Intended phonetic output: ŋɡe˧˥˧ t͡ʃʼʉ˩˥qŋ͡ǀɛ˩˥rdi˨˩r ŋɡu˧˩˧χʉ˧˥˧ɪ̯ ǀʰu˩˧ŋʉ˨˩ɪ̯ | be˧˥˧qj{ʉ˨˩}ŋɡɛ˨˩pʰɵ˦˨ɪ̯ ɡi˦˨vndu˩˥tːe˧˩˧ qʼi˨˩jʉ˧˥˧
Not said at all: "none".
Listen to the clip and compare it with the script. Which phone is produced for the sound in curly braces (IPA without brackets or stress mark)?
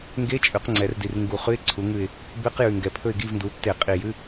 ʉ˨˩